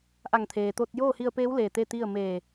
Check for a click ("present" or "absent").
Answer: absent